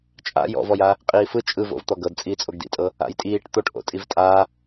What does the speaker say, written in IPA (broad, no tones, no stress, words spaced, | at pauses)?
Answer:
t͡ʃʼa̰ jɔ̰vɔja | qʼiːfɯ t͡ʃʼɯvo̰v t̪ɔɡɤd t͡sʼiːt͡sʼoɡdḭtʼɤ | a̰jtʼiːʈ t̪oʈ ʔo̰tʼivtʼa